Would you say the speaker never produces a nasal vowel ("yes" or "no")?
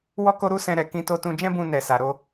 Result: no